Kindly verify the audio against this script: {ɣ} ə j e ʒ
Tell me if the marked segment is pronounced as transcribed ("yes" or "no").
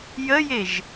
no